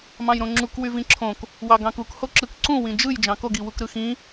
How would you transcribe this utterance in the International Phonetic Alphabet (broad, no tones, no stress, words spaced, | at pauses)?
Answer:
mɑ̃jɾõŋ͡ǁuk wyvĩǁʰõk | wɑɡɑ̃kuk hoǁɯk ǀũ wĩd͡ʒɯj d͡ʒɑ̃koɡ iwukɾɯxĩ